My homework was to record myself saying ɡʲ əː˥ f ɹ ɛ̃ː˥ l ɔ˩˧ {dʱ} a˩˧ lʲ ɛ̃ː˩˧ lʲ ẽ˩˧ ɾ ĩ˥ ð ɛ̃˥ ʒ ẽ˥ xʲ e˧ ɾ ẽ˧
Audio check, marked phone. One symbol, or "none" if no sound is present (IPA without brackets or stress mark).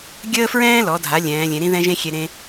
dʱ